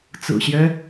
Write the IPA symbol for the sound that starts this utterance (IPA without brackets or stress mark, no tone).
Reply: t͡s